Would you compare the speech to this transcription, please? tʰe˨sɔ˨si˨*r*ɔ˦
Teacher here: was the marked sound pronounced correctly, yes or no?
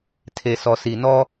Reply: no